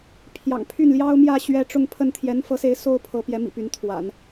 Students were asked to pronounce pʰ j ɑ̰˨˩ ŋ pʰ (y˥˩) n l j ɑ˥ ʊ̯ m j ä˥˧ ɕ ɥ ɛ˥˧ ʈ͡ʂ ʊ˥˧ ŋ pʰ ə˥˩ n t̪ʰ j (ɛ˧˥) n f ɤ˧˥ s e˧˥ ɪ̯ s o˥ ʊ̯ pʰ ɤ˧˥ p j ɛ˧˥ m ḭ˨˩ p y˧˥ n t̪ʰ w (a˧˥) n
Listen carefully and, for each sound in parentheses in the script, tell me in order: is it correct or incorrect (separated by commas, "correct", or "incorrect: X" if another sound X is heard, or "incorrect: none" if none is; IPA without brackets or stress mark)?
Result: correct, correct, incorrect: a̰˨˩˦